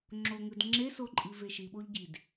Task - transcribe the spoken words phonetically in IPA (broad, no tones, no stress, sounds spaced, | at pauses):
ŋ͡ǁ o ŋ ɯ d ŋ͡ǁ e s o ǃʼ i v e ʃ i ɓ o ʎ ɟ i d